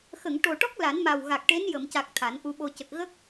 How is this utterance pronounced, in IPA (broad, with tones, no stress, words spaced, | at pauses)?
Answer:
xə˨˩˨ŋʈo˨˩ʈɔ˦˥k̚ la˨˩˦nma˨˩wɣa˨˩k̚ʈe˧˥n jə˨˩˨mca˨˩k̚ t̪ʰa˨˩˦nʔu˧ɓo˧ cə˨˩k̚ɣə˦˥k̚